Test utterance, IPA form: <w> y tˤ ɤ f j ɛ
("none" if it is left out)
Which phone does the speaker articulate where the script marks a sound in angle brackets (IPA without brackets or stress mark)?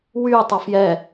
w